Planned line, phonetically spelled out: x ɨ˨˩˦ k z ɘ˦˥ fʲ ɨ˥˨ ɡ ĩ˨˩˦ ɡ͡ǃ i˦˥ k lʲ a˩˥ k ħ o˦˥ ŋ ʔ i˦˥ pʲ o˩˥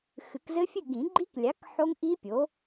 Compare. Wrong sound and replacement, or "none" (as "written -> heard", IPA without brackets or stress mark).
none